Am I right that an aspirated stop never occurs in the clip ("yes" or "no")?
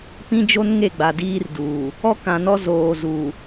yes